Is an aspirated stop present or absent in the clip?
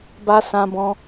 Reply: absent